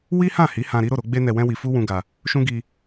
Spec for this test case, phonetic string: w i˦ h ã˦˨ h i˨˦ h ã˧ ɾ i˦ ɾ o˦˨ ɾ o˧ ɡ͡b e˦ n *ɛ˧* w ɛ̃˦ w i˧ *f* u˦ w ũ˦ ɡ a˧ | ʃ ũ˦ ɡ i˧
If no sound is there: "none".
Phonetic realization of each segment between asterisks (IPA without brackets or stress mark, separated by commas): ɛ˧, f